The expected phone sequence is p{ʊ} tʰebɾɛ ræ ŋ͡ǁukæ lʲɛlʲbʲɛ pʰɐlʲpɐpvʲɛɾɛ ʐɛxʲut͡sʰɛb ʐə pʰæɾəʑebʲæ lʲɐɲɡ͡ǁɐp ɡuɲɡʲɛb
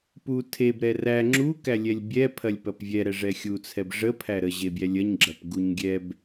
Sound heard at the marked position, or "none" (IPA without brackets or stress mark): u